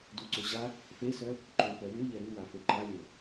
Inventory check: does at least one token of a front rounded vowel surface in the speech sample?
yes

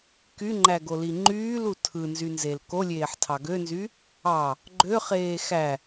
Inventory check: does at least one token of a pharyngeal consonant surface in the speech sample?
yes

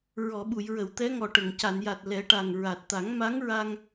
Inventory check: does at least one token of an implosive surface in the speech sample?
yes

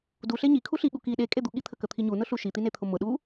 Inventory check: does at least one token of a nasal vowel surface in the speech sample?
no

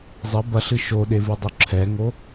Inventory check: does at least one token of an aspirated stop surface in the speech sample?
yes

